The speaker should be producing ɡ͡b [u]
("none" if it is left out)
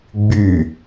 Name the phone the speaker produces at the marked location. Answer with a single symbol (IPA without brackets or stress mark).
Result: y